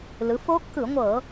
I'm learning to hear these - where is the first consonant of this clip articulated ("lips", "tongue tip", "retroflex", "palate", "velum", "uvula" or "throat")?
tongue tip